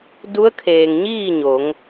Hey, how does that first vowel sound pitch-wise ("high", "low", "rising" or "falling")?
rising